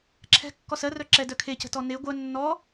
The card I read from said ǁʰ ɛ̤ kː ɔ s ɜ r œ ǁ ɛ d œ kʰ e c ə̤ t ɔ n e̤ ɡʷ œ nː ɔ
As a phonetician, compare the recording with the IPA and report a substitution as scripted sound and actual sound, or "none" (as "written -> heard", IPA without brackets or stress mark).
e̤ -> e